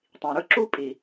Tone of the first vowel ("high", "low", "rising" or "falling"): low